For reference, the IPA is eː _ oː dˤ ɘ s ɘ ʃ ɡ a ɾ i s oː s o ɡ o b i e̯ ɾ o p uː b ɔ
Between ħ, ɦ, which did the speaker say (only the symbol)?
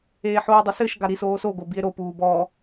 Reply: ħ